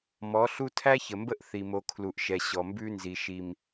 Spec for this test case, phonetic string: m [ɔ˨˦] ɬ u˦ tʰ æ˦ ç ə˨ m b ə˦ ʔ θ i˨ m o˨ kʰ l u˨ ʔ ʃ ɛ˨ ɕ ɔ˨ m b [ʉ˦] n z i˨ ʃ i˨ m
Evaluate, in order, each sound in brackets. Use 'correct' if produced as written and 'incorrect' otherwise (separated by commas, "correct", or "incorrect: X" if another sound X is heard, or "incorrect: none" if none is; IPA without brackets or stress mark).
correct, correct